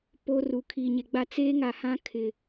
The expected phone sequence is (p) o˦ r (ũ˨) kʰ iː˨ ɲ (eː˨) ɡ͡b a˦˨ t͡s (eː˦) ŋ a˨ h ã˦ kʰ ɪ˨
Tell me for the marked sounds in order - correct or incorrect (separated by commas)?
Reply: correct, incorrect, incorrect, correct